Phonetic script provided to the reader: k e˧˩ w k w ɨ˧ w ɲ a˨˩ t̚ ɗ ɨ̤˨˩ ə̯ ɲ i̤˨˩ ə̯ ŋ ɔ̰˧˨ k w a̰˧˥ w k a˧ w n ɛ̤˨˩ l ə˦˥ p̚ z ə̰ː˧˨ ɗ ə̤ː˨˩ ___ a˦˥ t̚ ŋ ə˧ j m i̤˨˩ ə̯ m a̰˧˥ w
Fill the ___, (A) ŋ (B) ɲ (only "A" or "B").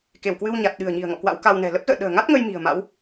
A